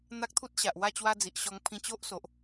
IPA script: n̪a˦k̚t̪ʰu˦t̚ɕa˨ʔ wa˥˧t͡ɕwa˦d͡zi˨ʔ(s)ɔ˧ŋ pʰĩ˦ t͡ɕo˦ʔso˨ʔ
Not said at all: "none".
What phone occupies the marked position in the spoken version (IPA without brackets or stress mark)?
ɕ